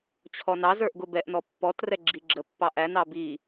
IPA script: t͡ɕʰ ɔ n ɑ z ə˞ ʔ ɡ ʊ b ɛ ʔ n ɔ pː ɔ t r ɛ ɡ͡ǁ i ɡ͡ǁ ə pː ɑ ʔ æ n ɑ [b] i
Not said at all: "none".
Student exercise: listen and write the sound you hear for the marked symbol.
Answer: b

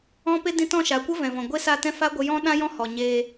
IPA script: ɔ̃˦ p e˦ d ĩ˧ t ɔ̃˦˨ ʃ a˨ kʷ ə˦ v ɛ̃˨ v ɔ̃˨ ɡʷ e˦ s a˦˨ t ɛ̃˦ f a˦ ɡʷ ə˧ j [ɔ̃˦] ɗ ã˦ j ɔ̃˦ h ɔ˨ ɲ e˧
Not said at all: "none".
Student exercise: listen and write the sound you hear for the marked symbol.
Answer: ɔ̃˦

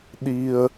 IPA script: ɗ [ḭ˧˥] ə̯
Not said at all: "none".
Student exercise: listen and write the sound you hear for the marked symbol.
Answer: i˧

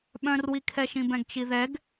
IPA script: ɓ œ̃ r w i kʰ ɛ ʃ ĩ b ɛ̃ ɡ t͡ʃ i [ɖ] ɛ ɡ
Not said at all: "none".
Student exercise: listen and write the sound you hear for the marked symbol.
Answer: ð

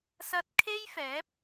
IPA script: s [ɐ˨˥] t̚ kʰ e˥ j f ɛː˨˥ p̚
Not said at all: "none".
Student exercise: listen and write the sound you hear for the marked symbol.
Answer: ɐ˧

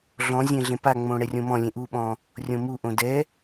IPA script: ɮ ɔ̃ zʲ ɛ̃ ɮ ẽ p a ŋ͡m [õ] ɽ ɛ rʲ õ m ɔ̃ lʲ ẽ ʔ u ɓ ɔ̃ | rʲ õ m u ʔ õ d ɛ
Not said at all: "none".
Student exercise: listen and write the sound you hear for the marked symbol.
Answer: õ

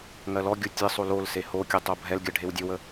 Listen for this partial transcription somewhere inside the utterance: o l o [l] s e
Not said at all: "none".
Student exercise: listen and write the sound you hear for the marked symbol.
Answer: l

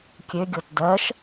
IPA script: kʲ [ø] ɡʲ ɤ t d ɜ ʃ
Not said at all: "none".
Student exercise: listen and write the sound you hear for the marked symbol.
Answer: ø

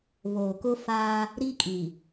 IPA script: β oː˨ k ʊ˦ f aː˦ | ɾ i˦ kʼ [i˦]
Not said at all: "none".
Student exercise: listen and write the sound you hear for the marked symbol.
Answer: i˨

